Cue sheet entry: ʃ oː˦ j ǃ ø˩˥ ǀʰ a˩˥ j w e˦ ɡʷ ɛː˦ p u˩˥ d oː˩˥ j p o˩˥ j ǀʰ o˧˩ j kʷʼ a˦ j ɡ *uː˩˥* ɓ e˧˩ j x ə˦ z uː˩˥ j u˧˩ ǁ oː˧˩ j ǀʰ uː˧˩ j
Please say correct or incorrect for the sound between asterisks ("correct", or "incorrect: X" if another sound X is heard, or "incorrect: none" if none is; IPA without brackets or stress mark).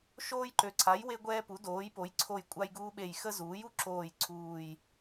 incorrect: uː˦